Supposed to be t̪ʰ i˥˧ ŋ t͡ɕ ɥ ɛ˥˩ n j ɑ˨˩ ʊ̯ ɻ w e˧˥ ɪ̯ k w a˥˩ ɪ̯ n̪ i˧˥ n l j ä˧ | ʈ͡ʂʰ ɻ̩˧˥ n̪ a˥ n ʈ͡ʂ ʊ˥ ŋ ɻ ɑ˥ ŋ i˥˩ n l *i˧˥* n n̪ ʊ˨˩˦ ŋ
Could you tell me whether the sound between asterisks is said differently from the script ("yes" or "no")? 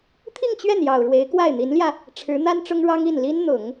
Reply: yes